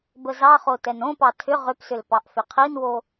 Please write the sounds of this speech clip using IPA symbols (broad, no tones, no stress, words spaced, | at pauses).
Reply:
bəzɑχo tɛnõpɑ tʰʏ ʁʏpsʏl pɑʔfʏqʰinwo